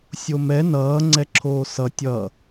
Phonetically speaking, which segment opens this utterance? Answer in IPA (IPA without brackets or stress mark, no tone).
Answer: sʲ